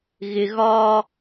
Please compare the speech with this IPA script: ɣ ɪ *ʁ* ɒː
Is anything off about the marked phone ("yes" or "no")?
yes